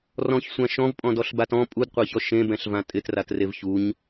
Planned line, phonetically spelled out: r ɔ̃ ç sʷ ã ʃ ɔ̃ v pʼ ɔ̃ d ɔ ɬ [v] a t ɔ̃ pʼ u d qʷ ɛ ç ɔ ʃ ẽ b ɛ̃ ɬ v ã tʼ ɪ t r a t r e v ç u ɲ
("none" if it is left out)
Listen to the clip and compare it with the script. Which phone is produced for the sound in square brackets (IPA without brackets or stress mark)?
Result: b